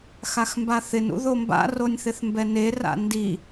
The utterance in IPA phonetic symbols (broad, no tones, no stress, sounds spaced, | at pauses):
x a x m b a θ ɪ n ṵ ð o m b a̰ r o nʲ θ ɪ θ m b ɛ n e r a̰ n d i